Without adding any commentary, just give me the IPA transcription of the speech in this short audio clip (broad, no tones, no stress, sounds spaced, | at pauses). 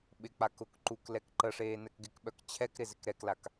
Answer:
ɓ ɪ k͡p a k ʊ k ǃ u k l ɛ k ǃ ə ʂ eː n ɛ k ɡ ɪ k ɓ œ k t͡ɕʰ ɛ k ɾ ɪ z ɪ k ɾ ɛ k l a k